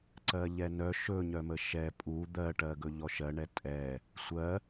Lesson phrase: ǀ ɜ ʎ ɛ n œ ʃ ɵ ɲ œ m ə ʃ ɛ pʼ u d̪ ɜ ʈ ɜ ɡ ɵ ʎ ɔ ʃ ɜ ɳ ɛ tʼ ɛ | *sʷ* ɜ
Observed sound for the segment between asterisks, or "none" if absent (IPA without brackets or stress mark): sʷ